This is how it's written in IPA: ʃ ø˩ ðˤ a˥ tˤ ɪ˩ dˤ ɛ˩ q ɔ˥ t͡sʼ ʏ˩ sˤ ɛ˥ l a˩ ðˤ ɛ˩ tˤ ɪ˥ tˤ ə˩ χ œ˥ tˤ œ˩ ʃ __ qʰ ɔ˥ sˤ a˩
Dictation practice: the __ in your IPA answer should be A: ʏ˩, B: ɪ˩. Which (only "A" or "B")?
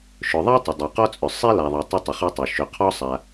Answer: A